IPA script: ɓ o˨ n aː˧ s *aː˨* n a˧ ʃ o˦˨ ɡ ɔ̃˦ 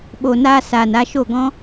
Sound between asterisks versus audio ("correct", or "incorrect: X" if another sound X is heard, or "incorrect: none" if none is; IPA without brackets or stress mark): correct